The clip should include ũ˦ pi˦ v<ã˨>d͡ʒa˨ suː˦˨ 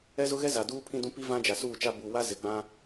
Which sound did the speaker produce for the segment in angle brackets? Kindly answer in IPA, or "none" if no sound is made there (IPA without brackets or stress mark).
ã˦